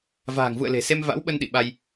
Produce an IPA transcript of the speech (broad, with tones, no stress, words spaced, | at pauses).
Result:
va̤ː˨˩ŋvṵ˧˨ə̯ le̤˨˩ se˧mva̰˧˥wɓə˧n ɗḭ˧˨ɓa˧j